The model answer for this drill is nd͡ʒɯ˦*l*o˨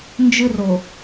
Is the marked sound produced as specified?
no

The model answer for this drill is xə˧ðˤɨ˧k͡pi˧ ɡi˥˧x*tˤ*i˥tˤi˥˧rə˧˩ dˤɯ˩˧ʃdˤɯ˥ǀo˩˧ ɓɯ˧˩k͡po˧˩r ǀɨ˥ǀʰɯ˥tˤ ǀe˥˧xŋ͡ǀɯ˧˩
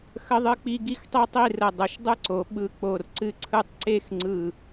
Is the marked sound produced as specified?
yes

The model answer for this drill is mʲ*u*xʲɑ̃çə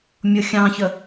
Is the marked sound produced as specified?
no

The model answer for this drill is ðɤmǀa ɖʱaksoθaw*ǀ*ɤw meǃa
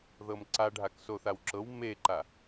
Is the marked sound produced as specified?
no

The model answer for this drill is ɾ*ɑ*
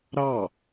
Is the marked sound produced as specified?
yes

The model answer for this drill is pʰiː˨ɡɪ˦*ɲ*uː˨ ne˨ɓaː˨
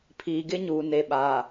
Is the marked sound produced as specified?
yes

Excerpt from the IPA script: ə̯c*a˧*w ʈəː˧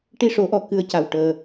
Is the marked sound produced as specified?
no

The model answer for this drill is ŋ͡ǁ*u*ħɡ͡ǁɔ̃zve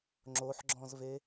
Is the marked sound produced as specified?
no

